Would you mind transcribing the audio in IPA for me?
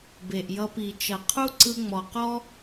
b e˨ ʔ j ʌ˧ p i˨ t͡ʃ ʌ˨ qʰ u˦ ǀ ɯ˧ ŋ͡m ɔ˨ q ɔ˦

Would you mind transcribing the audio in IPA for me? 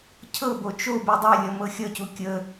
cʰ ɤ b o t͡ʃ o b e dˤ e lʲ ʌ m ɤ xʲ ʌ c u kʲ ə

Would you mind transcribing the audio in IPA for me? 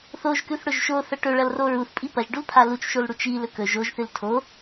θ o ʒ k ʉ θ ɽ ɵ ʒ ʃ o θ ɐ ʈ ɵ ɭ ɐ l r o ɹ u θ pʼ i p ɐ ʒ ɖ u l pʰ a l u t͡ʃ ʃ o l ɽ u t͡ʃ i l ɵ k ɵ ʒ o ʒ θ ɨ l tʰ o

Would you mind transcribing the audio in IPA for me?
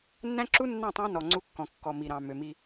nː æ̃˦ ǁ u˦ nː ɑ̃˦˨ tˤ ɑ̃˦ n ɔ˨ ŋ͡ǀ u˦ kː ɔ̃˨ kː ɔ˨ m i˨ ɾ ɑ̃˨ m ø˨ m i˦

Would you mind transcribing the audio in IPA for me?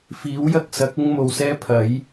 f iː˨˥ w j ɐ˧ k̚ s ɐ˨˥ k̚ ʊ˥ ŋ m o˨ w s ɛː˥ pʰ ɐ˨˥ j

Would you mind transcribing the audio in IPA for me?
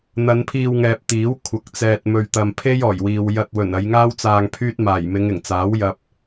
n̪ ɐ˨˧ n pʰ iː˧ w ŋ ɛː˨ p̚ t̪ iː˨˥ w kʷʰ ɐ˨ k̚ t͡s ɛː˨ t̚ m ɵ˨ ɥ t̪ ɐ˨ m pʰ e˥ j ɔː˨˩ j w iː˨ w j ɐ˧ t̚ w ɵ˨˩ n ɐ˨˧ j ŋ aː˥ w t͡s aː˧ ŋ pʰ yː˥ t̚ m aː˨˩ j m ɪ˨˧ ŋ ɪ˨˩ ŋ t͡s aː˨˥ w j ɐ˧ p̚

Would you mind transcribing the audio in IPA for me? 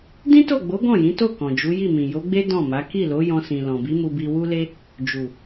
d ĩ˦ t o˦˨ ɡ͡b o˨˦ ɡ ɔ̃˦˨ j ĩ˨˦ t o˦˨ k ɔ̃˨ d͡ʒ u˨˦ j i˦˨ m ĩ˨ j o˨˦ ɡ͡b e˦ d ɔ̃˦˨ m a˨˦ k i˦˨ l o˨˦ j ɔ̃˧ s ĩ˨ l ɔ̃˨ b i˨˦ m u˧ b i˧ w u˦ l e˦ | d͡ʒ u˨

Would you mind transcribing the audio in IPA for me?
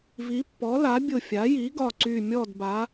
v i˩˥ pː ɔ˩˥ l a˩˥ bʲ ʊ˧˩ fʲ a˩˥ j i˩˥ ɡ ɒ˧˩ ǀ y˧˩ mʲ ɔ˥˨ d b a˩˥

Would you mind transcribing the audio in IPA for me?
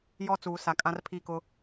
j ɔ˦ t͡s uː˨ s a˨ kʼ ã˦ r pʰ i˦˨ k ʊ˦

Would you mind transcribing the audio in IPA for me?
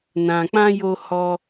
n ã˧ k͡p ã˦ j o˦ h ɔ˦

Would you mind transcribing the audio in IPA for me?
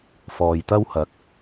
f ɔː˨ j t̪ ɐ˥ w h ɐ˨ k̚

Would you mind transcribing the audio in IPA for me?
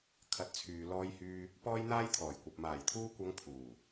kʰ ɐ˨˥ t̚ t͡sʰ yː˨ l ɔː˧ j h yː˧ | p ɔː˥ j n̪ aː˥ j t̪ʰ ɔː˨˩ j kʷ ɐ˨ p̚ m aː˨˩ j t̪ʰ uː˧ kʷ ɐ˨˧ ŋ pʰ uː˨˩

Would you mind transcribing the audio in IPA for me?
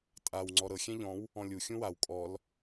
tʼ a w ŋ͡ǀ ɔ ɾ ɤ xʲ ɛ̃ ʎ ɔ̃ w | ɔ̃ lʲ u xʲ ũ w a w kʼ ɔ l

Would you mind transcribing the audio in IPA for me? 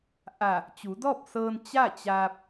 ʔ a˧˩ | t͡ɕ u˩˧ d ɔː˥˨ p̚ s ɤː˧ n t͡ɕ a˥˨ t͡ɕ aː˧ p̚

